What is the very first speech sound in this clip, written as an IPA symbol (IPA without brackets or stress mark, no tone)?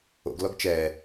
o̰